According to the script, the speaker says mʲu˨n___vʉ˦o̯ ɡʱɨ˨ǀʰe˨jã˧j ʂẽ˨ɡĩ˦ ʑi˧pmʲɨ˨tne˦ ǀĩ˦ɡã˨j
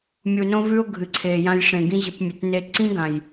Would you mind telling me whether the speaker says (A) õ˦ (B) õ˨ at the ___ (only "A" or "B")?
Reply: A